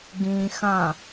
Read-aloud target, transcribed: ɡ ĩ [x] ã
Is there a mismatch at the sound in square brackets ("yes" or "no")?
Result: no